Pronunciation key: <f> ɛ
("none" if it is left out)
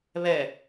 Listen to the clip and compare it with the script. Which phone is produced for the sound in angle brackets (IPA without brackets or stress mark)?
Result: β